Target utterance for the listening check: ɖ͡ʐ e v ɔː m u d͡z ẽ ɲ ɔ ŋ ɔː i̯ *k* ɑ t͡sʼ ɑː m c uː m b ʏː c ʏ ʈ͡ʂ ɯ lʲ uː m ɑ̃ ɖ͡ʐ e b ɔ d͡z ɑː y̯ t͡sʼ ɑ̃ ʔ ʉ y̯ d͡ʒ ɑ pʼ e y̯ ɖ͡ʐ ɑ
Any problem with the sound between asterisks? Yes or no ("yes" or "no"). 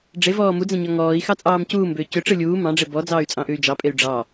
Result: yes